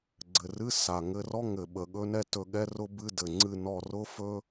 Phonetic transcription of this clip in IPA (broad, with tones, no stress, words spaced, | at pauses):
ɡ͡ǀɘ˨˩rɨ˧˥˧ sa˨˩ ŋɘ˧˥˧rɔ˥ ŋɘ˨˩ɓə˨˩ ɠɵ˥nɛ˥ tɵ˦˨ɠɛ˥rʊ˥bɨ˧˥˧ dɘ˨˩ŋ͡ǀɨ˦˨ nɔ˦˨ rʊ˥fɵ˥